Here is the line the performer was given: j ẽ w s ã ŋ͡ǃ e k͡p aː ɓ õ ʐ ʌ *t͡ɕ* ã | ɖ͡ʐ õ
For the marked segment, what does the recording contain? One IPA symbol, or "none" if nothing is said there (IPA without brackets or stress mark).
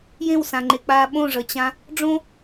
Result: t͡ɕ